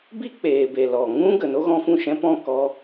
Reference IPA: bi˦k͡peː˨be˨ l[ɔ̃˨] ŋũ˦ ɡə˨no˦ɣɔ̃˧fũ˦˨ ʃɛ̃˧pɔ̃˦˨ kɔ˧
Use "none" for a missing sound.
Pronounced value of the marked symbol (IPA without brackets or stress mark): ɔ˨